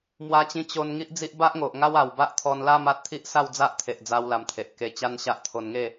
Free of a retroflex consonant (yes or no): yes